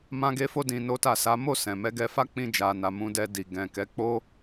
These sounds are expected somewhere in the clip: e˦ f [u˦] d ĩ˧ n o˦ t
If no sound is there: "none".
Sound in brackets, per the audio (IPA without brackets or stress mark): o˦